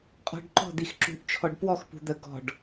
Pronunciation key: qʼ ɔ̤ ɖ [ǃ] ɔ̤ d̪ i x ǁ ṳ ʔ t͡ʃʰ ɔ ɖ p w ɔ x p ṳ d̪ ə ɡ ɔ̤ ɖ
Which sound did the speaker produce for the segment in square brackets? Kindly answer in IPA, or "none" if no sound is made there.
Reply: ǃ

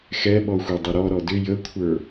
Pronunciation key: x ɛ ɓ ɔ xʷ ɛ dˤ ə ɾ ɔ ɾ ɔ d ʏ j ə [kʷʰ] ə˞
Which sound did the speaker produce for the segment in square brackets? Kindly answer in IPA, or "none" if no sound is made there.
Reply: kʷʰ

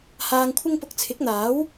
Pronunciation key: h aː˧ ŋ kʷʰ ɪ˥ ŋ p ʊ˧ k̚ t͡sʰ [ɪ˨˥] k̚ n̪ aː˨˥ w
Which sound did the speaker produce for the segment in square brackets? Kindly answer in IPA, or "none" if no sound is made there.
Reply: ɪ˨˥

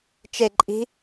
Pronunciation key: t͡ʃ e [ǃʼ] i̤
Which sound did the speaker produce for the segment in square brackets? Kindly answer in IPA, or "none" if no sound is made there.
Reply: ǃʼ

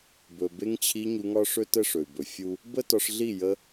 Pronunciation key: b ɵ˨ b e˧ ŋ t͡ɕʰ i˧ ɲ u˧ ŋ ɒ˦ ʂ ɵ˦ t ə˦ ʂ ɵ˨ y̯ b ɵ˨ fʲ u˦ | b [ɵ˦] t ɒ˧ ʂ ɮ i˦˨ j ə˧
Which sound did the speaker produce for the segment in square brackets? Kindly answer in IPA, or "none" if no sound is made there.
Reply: ə˦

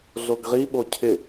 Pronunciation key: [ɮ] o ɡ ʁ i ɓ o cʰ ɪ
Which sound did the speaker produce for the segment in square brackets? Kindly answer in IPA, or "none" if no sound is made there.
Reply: ɮ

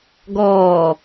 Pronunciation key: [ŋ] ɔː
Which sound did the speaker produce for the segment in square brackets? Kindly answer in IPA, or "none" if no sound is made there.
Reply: ɡ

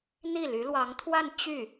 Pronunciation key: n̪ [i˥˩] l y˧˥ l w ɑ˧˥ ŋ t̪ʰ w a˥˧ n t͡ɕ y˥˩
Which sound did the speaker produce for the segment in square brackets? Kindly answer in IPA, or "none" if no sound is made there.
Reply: i˥˩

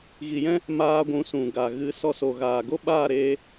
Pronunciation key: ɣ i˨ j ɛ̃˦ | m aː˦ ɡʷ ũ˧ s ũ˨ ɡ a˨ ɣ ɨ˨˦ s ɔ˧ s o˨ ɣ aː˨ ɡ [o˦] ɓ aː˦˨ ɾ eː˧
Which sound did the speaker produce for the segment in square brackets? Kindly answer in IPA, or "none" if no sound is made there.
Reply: o˦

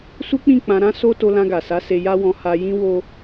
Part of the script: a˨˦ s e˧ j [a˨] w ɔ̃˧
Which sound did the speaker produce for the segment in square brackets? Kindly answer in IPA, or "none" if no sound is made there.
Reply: a˦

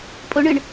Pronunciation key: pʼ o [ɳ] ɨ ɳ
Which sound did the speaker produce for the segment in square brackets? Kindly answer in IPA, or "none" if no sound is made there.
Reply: ɳ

